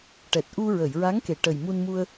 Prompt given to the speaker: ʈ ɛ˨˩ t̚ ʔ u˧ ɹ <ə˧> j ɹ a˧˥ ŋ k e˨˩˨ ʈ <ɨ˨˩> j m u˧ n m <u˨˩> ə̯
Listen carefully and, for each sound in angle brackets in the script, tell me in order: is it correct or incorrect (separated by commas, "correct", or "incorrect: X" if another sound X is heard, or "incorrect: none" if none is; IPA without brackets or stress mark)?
incorrect: ə˨˩˨, incorrect: ə˨˩, incorrect: u˧